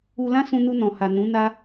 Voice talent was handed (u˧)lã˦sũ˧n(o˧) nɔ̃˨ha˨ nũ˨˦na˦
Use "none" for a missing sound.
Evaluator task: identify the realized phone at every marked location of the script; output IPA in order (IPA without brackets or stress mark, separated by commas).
u˧, u˧